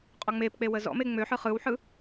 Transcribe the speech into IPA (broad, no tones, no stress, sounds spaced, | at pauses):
qʼ ɔ ŋ͡m e p k͡p e w ə z ɔ̰ m e ŋ͡m ø ħ ɯ χ ɯ w ħ ɯ